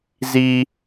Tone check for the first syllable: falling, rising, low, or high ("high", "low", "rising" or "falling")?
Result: high